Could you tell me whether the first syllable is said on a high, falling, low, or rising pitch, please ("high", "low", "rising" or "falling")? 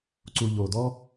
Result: low